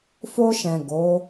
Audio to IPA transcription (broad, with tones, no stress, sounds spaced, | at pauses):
f o˧ ʃ ɛ̃˨ ɡ o˨˦